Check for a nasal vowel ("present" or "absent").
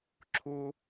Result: absent